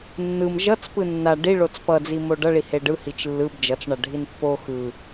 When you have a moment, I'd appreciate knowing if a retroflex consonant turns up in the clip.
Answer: yes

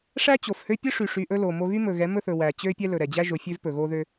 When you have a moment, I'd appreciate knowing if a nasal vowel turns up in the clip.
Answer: no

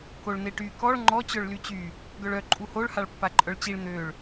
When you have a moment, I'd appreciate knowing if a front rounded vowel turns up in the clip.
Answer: yes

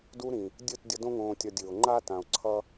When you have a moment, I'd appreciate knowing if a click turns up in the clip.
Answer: yes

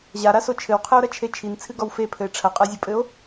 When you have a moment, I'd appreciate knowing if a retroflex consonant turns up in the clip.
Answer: yes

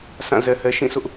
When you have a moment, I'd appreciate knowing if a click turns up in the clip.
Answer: no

